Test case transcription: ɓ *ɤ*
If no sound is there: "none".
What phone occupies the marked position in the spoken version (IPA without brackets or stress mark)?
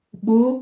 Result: o